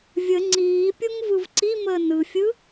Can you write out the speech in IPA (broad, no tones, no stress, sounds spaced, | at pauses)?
vʲ ə ŋ͡ǀ iː pʲ o ŋ v ɯ v ǀ i m əː n ɯ fʲ ɯ